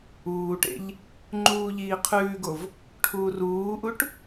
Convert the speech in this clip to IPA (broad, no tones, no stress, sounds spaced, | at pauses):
uː ʈ ḛ ʎ | ŋ͡ǃ uː ʎ iː qʰ ʉː ɡ o v | ʈʰ uː r uː ʔ u ʈ